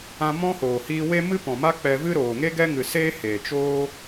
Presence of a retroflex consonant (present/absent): absent